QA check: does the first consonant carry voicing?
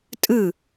no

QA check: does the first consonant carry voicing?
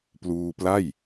no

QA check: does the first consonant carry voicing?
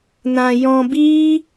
yes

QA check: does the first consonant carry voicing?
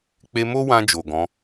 no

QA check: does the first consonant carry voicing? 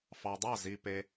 no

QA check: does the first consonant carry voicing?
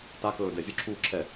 no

